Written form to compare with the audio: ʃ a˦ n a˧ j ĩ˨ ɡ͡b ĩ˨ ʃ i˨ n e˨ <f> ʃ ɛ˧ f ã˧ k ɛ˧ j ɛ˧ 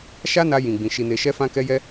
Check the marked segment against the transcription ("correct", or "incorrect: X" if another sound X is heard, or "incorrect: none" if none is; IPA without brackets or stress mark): incorrect: none